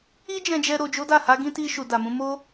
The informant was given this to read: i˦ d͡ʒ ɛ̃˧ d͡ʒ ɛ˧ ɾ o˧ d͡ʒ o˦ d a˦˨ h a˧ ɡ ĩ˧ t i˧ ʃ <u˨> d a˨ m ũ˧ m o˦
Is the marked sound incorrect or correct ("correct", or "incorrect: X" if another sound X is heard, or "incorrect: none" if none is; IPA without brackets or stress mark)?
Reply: correct